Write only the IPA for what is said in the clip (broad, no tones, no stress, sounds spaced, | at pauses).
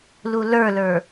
l u l ə˞ l ə˞